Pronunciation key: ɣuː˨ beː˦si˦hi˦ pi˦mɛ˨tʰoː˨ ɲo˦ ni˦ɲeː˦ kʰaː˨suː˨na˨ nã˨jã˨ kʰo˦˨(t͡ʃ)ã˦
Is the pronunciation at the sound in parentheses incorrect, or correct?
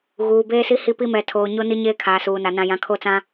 incorrect